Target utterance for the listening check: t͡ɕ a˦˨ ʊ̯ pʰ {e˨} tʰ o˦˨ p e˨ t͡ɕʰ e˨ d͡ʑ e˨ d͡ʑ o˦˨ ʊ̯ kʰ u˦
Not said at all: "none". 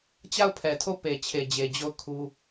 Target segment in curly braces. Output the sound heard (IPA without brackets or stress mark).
ɛ˨